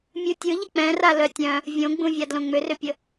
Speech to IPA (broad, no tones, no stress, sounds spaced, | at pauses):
mʲ u tʲ ɯ ʎ ə k͡p ɛ̃ r a l œ tʲ œ̃ | vʲ õ ɡ͡b ũ vʲ a d l õ ŋ͡m ʏ r ʏ pʲ ə